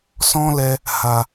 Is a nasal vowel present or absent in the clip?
present